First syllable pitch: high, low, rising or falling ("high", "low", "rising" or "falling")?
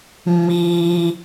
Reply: low